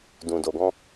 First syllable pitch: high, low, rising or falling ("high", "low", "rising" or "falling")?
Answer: low